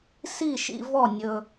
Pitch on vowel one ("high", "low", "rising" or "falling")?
falling